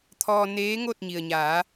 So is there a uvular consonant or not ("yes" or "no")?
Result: no